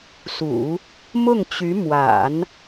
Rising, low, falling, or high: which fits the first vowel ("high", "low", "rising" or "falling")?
low